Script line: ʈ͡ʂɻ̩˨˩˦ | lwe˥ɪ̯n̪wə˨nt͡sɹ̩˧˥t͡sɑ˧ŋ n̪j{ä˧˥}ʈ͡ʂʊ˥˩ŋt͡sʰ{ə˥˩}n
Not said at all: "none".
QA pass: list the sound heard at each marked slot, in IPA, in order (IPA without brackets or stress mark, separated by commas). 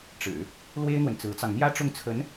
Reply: ä˥, ə˧˥